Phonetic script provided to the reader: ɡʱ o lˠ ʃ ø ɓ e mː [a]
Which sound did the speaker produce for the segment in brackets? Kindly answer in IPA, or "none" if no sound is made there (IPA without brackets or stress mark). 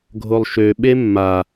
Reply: a